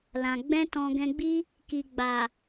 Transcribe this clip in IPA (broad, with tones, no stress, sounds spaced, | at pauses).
l ã˨ ɡ͡b ɛ̃˧ t ɔ̃˧ ɡ ɛ̃˧ ɡ͡b i˦ | k i˨ ɡ͡b a˨